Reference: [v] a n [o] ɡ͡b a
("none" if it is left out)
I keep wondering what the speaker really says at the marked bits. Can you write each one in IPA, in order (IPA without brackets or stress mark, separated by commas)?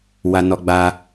w, ɔ